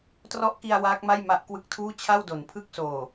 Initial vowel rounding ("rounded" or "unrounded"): rounded